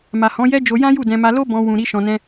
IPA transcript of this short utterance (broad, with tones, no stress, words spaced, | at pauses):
ma˨hɔ̃˨˦jɛ˦ d͡ʒo˧ jã˦ju˦˨ dɛ̃˧ma˧ lo˦ bɔ̃˧ wũ˨ɾi˧ ʃɔ̃˧nɛ̃˦